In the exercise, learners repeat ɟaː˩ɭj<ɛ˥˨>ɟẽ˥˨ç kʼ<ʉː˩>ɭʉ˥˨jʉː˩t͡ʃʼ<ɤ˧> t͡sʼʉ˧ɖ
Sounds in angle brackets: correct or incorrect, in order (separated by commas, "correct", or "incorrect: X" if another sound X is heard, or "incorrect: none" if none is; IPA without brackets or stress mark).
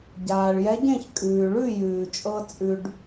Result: incorrect: ɛ˧˥, correct, correct